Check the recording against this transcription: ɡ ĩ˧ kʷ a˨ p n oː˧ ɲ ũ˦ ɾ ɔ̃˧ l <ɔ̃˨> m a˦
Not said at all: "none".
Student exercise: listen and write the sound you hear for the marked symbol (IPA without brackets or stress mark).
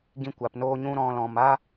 ɔ̃˨